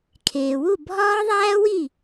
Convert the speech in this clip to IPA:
kʰeː˩wu˥˩ bʱɒː˦˥ðˤæː˦˥wi˥˩

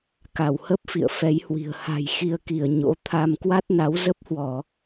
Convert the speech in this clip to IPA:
ka˧˩whə˦˥p̚ fḭ˧˨ə̯fɛ˨˦jhwi̤˨˩ə̯ ha̤˨˩jxi˧ə̯ki˧˩ə̯ ɲo̰˧˥ t̪ʰa˧m kwa˦˥t̚na˨˦wzə˦˥p̚hwɔ˧˩˨

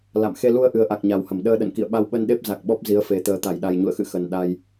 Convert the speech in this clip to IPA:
la̰˧˨m xe˧lu˧ə̯ʔɨ˨˩ə̯ʔa˨˩k̚ ɲa˨˩whə˧˩mɗəː˧ ɗə̰˧˨nkḭ˧˨ə̯ɓa˧w ɓə˧nɗe˦˥p̚ za˨˩k̚ɓɔ˦˥p̚ zi˨˦ə̯fe˨˩ t̪əː˨˩t̪a˧˩jɗa˨˩jɲṵ˧˨ə̯ xɨ̰˧˨ xə˨˩n ɗa˧j

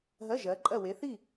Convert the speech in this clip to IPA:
ɦɜ˧˥˧ʒɜ˨˦ ǃʼɜ˥˨ we˨˦θi˥˨

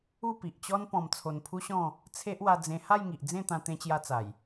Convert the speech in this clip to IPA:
u˥˧pi˨ʔt͡ɕɔ˦n pɔ̃˧mt͡sʰo˧npʰu˦ɕɔ̃˥˧ | t͡sʰe˦ʔwa˧d͡zẽ˧ ha˥˧jŋi˨ʔd͡zẽ˥˧t̪ã˧ t̪ẽ˦t͡ɕja˦ t͡sa˨˩j

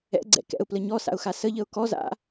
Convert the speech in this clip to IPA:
ɛ̰ɡ͡ǀɛ̰ kɛ̰ʊ̯plə ɲɔsa̰ʊ̯xa səʎəʊ̯ kɔza̰

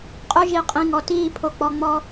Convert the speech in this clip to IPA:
qʼɵ˦ ʒi˨qʼĩ˨ŋɔ˨tiː˦˨ pʰo˨k͡pɔ˨ŋ͡mɔ˦

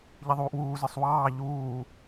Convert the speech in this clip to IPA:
ʎiðˤuːʔwuːzə˞sˤ wɑː ʎuː

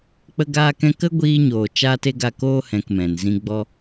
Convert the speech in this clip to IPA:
k͡pə˧ɡaː˧kɛ̃˧ kə˦ɡʷiː˧ɲoː˨ t͡ʃaː˦te˦ɡa˦˨ koː˦hɛ̃˨k mɛ̃˨nzĩ˦ ɡ͡bɔ˦

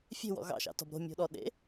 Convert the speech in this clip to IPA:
fʲe̤wɔ̰ ɣɑ̰ʃɑ̰tɔ̤b ɾo̤ mʲo̤ɗɔɗḛ

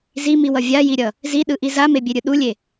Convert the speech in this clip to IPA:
zimiwʌ vʲajiɾʲʌ | ziɗɯʔi zamebʲeɾʲɯ ɗulʲe

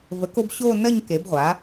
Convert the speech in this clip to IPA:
və˩˥ko˥˧bɕoː˥˧ nɜ˥˧ɲ ke˩˥bʁʷa˩˥

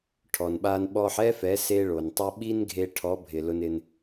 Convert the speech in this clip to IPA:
ʈʰɔ˨nɓa˧n ɓɔ˧ħɛ˦fɛ˨˦ se˧ɭo˨ntˤɛ˧ ɓi˦nɡʱe˧ʈʰɔ˨˦bʱɪ˨ lʊ˧nɪ˧n

